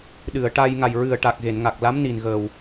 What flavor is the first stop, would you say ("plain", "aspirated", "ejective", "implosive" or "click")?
implosive